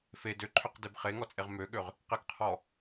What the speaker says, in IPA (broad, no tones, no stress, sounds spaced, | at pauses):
f e d ø ǃʰ ø q d e b χ e ŋ ɔ t͡sʼ e ʁ m ø ɠ ø ʁ | q e ɡ qʰ ɔ